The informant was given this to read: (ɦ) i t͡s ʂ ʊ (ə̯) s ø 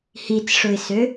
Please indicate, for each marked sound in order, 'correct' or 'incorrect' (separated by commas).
incorrect, incorrect